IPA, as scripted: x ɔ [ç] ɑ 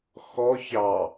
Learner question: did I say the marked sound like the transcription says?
yes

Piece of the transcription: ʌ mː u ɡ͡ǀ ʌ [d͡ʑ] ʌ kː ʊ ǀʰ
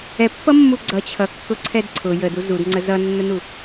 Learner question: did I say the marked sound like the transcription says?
no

